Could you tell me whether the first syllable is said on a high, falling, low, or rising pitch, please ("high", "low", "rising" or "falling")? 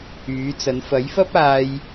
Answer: rising